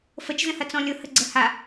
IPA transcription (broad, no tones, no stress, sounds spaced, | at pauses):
f ə t͡ʃ z ə̃ h ɐ t͡s ɔ̃ lʲ ʊ h ə ɡ͡ǀ ə h a